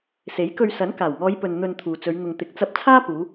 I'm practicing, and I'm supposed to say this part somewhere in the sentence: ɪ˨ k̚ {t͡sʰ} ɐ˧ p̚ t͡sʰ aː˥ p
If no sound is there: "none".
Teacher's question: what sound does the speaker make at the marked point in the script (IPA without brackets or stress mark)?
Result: t͡s